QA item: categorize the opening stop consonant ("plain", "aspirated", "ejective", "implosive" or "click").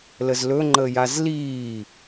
click